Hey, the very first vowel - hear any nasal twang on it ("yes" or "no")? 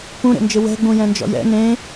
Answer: yes